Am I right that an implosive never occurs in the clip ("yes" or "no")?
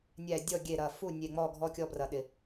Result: no